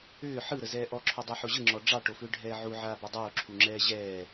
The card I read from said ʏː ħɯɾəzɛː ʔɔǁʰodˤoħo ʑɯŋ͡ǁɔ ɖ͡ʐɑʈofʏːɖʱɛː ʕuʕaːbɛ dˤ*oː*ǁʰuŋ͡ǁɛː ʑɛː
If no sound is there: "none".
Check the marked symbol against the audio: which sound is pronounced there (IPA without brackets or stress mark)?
oː